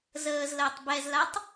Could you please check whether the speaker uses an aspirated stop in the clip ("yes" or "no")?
no